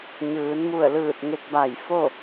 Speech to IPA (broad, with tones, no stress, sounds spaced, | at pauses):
ɲ ɯː˩˧ n m u˧˩ ə̯ l ɯː˧˩ t̚ ŋ e˧ k̚ b a˧˩ j f o˥˨